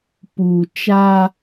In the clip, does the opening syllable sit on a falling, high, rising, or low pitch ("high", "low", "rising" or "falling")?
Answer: low